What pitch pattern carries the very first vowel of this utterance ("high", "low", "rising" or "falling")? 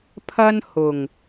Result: high